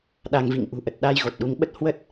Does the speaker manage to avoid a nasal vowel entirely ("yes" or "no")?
yes